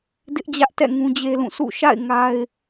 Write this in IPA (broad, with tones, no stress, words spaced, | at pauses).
dɪ˦ʔd͡ʑä˦ʔtɛ̰˦˨ ŋũ˦d͡ʑe˦lũ˦˨ sṵ˦˨ʃa̰˦˨ɪ̯ ŋa˦ɪ̯